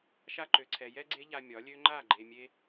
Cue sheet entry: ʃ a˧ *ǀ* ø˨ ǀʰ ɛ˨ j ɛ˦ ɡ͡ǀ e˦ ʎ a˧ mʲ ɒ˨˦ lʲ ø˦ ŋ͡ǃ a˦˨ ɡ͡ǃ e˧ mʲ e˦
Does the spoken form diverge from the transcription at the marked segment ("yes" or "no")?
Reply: yes